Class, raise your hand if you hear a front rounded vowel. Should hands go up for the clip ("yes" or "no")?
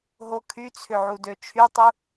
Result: yes